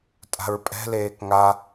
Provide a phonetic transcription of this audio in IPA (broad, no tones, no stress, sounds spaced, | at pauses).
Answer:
tʼ a̤ ɹ pʼ ɛ̤ l eː k ŋ a